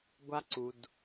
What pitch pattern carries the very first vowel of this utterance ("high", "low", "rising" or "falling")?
high